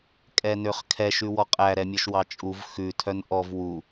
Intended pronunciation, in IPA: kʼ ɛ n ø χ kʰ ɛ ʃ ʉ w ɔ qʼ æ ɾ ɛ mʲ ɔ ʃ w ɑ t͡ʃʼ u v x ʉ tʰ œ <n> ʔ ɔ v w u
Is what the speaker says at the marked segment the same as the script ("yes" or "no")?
yes